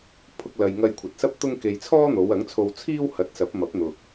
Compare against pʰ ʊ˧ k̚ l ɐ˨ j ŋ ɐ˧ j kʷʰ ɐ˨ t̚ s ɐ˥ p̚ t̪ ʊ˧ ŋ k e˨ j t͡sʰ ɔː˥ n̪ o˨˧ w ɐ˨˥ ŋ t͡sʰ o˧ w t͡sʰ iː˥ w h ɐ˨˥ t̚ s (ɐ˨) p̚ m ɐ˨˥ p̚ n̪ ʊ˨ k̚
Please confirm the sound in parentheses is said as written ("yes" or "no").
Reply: no